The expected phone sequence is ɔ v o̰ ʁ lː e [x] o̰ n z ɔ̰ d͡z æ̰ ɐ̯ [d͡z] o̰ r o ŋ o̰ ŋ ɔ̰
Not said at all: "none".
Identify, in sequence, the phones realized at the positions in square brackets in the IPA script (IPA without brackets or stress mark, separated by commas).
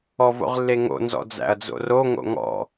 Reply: ŋ, d͡z